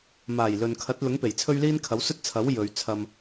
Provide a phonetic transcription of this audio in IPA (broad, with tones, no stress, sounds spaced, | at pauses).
m aː˨˩ j l ɵ˨ n kʰ ɐ˨˥ t̚ l ʊ˨˥ ŋ p e˨˩ j t͡sʰ ɵ˥ ɥ l iː˥ n kʰ ɐ˨˥ w s ɵ˥ t̚ t͡sʰ ɐ˨˥ w j ɵ˨˧ ɥ t͡sʰ ɐ˧ m